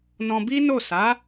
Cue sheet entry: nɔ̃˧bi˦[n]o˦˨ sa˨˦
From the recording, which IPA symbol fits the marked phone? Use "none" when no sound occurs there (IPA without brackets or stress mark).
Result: n